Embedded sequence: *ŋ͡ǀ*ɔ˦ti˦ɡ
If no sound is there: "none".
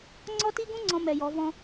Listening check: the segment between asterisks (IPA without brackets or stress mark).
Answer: ŋ͡ǀ